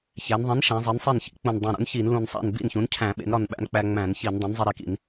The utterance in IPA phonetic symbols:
ç æ˩˧ n ðˤ ĩ˩˥ n ʃ æ̃˩˧ zˤ i˩˧ n sˤ e˥˩ n ç ḭ˩˥ k͡p ũ˨˩ n dˤ ũ˨˩ ɾ ṵ˩˥ n ç i˧˩˧ n l ũ˨˩ n sˤ æ̰˥˩ n b ḭ˥˩ n ç ũ˩˥ n cʰ æ̃˧˩˧ ɓ ḛ˩˥ n ɾ ɒ˥˩ n ɓ æ̰˦ n k͡p æ˦ ŋ͡m æ̃˧˩˧ n ç i˧˩˧ n dˤ ĩ˩˥ n zˤ e˦ ɾ e˥˩ k ḭ˧˩˧ n

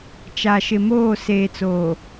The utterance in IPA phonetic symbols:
t͡ʃ a˨ ʃ ɪ˨ m oː˦˨ s eː˨ t͡s oː˨

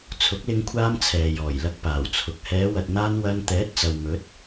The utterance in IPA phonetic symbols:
t͡sʰ ʊ˨˥ k̚ l ɪ˧ ŋ kʷʰ aː˧ m t͡sʰ ɛː˨ j ɔː˨˩ j l ɐ˧ k̚ p aː˨˩ w t͡sʰ ʊ˨˥ k̚ h ɛː˨˧ w ɐ˨ t̚ n̪ aː˧ n w ɐ˧ n t̪ ɛː˨˥ t̚ t͡s ɐ˨ w m ɵ˨˥ t̚

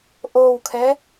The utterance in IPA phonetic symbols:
ʔ o w kʰ ɛ

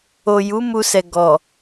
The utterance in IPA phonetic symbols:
o˨ j u˨˦ m u˧ s ɛ˨ ɡ ɔ˨

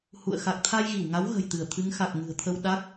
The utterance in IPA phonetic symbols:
h ṵ˧˨ ə̯ x a˨˩ k̚ t̪ʰ a˧ j ɣ i˧˩ w ŋ a˨˦ w ɣ ə̤˨˩ j t̪ ɨ˧˩ ə̯ t̪ʰ ɨ˨˦ ŋ x a˨˩ k̚ ŋ ɨ̤˨˩ ə̯ t̪ʰ ə˧ w ɗ a˦˥ k̚

